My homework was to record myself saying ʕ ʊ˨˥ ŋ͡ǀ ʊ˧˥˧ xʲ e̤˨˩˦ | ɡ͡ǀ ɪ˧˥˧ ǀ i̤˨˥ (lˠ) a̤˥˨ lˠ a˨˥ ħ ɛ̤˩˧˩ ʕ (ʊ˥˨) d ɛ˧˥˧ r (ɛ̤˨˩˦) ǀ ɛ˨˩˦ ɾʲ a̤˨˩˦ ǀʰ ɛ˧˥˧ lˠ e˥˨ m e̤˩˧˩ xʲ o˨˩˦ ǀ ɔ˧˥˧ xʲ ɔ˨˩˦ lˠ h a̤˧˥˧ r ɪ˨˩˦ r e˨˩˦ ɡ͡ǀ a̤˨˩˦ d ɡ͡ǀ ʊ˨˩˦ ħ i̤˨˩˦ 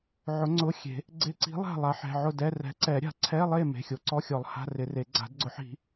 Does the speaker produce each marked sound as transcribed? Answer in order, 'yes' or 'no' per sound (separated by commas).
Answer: yes, yes, no